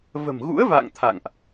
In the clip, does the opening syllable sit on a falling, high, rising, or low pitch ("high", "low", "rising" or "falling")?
low